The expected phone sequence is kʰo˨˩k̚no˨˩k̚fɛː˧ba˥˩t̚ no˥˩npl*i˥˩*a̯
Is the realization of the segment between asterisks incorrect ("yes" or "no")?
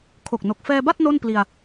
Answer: yes